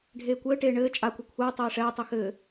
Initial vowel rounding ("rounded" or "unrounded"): unrounded